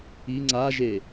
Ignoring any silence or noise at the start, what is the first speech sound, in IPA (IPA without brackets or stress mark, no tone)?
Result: i